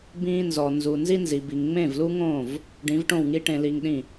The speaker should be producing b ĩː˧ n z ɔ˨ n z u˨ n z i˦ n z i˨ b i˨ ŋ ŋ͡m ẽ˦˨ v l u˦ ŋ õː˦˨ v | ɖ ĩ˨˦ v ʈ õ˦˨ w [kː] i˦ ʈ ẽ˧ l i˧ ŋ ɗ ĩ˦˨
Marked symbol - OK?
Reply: no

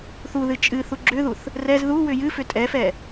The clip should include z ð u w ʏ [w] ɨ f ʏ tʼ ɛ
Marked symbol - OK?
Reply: no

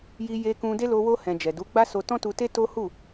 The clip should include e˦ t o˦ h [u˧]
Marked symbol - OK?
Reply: no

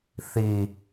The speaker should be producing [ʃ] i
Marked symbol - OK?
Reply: no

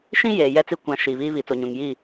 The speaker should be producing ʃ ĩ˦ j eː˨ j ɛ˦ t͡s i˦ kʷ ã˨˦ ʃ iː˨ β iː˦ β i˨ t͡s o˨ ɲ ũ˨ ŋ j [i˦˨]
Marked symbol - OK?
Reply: yes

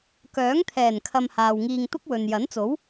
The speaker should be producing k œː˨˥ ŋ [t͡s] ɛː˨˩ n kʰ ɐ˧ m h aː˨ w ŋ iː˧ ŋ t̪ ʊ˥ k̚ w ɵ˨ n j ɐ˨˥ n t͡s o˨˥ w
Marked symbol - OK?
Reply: no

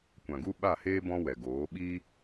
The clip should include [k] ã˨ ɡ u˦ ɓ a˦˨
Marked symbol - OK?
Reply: no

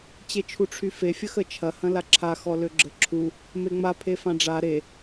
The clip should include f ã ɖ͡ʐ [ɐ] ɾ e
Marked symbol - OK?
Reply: no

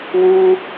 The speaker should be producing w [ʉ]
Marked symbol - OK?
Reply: no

